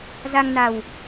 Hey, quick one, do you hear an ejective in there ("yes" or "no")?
no